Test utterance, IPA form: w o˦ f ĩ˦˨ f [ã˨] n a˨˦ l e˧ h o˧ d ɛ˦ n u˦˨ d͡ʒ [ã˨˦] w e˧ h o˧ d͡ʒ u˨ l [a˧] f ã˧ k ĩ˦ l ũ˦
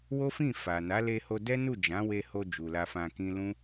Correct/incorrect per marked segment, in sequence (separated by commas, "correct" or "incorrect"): incorrect, correct, correct